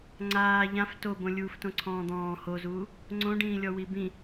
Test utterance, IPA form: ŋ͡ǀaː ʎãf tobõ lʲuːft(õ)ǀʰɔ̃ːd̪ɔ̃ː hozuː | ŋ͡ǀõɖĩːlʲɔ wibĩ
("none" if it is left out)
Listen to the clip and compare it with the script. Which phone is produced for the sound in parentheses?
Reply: õ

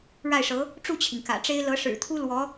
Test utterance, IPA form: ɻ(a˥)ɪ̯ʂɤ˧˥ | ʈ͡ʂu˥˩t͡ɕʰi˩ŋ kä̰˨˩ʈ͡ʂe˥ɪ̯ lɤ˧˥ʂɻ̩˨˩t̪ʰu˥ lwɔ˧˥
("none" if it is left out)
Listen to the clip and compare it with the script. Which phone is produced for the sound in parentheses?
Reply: a˥˩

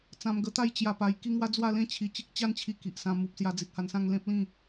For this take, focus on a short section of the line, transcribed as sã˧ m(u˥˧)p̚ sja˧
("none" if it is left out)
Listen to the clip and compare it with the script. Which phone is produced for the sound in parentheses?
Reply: u˨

